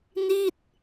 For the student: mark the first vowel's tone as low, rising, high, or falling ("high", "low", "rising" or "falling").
falling